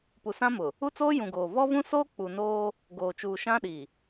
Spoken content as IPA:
p u˨ s ã˦ m ʊ˨ | u˦ t͡s oː˦ j ũ˨ ɡ oː˨ v ɔ˦ v ũ˦ s oː˦ k͡p u˨ n oː˦ | ɡ oː˨ t͡ʃ uː˨ ʃ ã˦ ɗ i˨

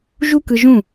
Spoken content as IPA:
ʒ u˦ k ɯ˧ ʒ ũ˦˨

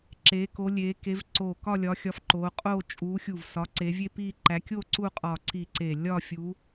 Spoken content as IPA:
ǁ e˨˦ k o˨˦ lʲ e˨˦ k e˨˦ v ǀ o˧˩ k ɒ˥˧ lʲ ɒ˨˦ xʲ ɒ˨˦ f ǃ o˨˦ qʼ o˥˧ t͡ʃʼ u˨˦ xʲ u˧˩ v s ɒ˨˦ ǀ e˨˦ vʲ e˥˧ p i˥˧ ǃ æ˨˦ kʲ o˥˧ ǀ u˥˧ qʼ ɒ˧˩ ǀ i˧˩ ǀ e˧˩ lʲ ɒ˥˧ fʲ u˨˦

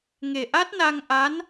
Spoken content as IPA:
ŋ e˨˩ ʔ a˦˥ t̚ n a˧ ŋ ʔ a˧˥ n

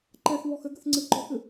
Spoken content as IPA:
ǃ ɛ θ β ɔ x ɘ ɡ ɘ θ ŋ͡ǀ ɨ ǃ ɔ x ɨ

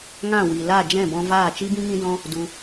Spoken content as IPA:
ŋ ã˦˨ w i˨ l a˦˨ d͡ʒ ɛ̃˦˨ b ɔ̃˧ v aː˦˨ t͡ʃ i˦ b ĩ˦ ŋ ĩ˦ d ɔ̃˦ | d u˧

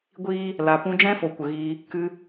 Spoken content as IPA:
ɡʷ iː˦ | l a˨ p ũ˧ d͡ʒ ɛ̃˦ f o˨ kʷ ə˨ ɣ iː˧ | k ɨ˧

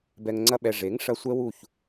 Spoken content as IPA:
b ɛ˧ ŋ ŋ͡ǀ ɐ˦ ɓ ɛ˧ ʐ e˨˦ ŋ ʂ ɐ˧ sʷ ɛ˦ w u˦˨ ç

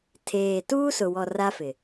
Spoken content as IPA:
tʰ eː˨ t uː˦ s ʊ˨ w ɔ˨ r a˦ f ɪ˨

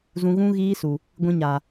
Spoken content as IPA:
z ũ˧ ɣ ũ˦ ɣ iː˦ s u˨ | ɡʷ ĩ˧ ɲ a˨

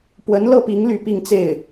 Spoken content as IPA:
p w ə˧˥ n l ɤ˥˩ p i˧˥ ŋ l y˥ p i˥˧ ŋ t͡s e˥˩ ɪ̯

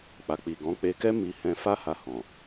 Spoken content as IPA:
k͡p a˨ k͡p i˨ ɡ ɔ̃˨˦ k͡p e˧ k ɛ˦ m i˧ h ɛ̃˧ f a˦ h a˧ h ɔ̃˨

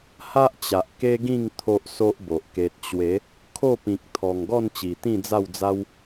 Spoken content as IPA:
h a˦ ʔ t͡ɕ a˨ ʔ k e˦ ɡ ĩ˥˧ ŋ t̪ʰ o˦ ʔ s o˦ ʔ b o˨ ʔ k e˨ t̚ t͡ɕ w e˨˦ | kʰ o˥˧ p ĩ˨ k̚ t̪ʰ ɔ˨˩ ŋ ɡ ɔ˥˧ n t͡ɕ i˨˩ t̪ ĩ˥˧ d͡z a˥˧ w d͡z a˦ w

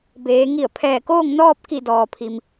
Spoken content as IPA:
b eː˩˧ ŋ i˧˩ ə̯ pʰ ɛː˧˩ k oː˥˨ ŋ n ɔː˥˨ p̚ k i˧˩ d ɔː˩ pʰ i˩ m

